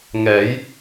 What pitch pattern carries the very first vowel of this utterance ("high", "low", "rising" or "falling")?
rising